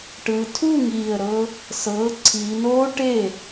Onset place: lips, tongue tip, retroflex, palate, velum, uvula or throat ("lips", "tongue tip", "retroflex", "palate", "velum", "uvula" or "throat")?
retroflex